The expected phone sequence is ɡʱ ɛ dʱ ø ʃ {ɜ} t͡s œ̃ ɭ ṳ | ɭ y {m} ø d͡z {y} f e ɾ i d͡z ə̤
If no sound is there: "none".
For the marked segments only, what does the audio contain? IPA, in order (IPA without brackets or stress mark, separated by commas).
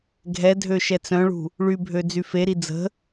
ɛ, bʱ, y